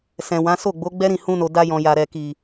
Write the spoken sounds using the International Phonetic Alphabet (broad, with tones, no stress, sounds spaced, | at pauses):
s ɛ̃˨ w ã˨˦ s o˦˨ ɡ͡b o˨˦ ɡ͡b ɛ˦ ɾ ĩ˦˨ h ũ˧ n o˨ d a˧ j ɔ̃˨ j a˨ ɾ ɛ˨ k i˨